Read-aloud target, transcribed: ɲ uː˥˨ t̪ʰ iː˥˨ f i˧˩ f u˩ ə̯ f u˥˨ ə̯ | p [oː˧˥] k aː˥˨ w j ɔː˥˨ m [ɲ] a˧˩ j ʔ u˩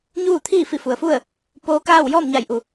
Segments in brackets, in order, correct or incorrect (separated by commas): correct, correct